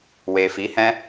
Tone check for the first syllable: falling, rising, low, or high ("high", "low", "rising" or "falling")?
low